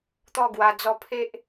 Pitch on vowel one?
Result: falling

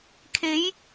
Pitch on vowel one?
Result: rising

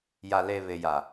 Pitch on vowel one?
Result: low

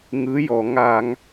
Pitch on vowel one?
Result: rising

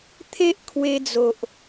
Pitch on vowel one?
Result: high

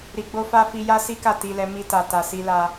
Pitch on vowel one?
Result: low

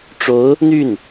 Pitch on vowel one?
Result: rising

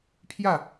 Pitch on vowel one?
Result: falling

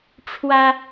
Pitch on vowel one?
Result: high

